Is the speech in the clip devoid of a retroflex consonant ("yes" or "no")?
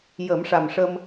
no